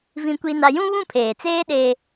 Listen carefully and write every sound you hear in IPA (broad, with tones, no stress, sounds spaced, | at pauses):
v ĩ˦ kʷ i˦ n a˦ j ũ˦ β ũ˦˨ pʰ eː˨ t͡s eː˦ ɗ e˦